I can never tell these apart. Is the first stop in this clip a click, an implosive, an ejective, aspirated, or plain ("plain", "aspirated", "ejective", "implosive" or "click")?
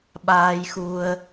implosive